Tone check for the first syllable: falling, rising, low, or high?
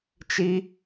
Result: high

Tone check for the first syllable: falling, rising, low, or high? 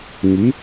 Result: rising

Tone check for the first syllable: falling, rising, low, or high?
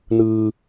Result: low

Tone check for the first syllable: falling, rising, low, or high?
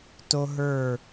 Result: high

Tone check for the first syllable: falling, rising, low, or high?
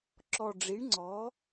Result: low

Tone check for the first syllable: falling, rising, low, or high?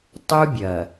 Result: high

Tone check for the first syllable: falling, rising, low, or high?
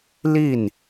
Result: falling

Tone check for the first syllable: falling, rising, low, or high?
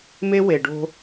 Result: high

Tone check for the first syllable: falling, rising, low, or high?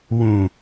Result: low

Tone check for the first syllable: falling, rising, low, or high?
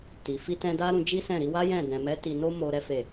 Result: low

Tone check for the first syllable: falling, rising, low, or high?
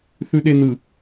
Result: low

